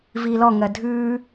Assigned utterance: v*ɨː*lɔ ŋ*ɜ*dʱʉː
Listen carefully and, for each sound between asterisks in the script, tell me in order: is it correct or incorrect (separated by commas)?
incorrect, correct